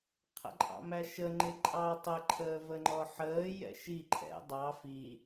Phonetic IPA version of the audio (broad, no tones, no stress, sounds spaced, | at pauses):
qʰ ə̰ ǃʼ ɑ̰ m æ ʃ ə ŋ͡ǃ ɪ ǃʼ ɑ tˤ ə ǃʰ əː v ə ŋ͡ǃ ɔ ħ əː j ɛ̰ ʃ i ǃʰ ɛ̰ dˤ ɑ f i